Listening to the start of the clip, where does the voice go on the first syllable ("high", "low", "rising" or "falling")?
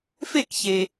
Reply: falling